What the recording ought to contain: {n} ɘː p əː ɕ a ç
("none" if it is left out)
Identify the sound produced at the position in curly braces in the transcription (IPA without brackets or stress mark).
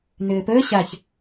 n